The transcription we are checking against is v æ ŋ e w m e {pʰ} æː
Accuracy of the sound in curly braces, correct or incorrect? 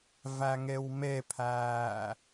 correct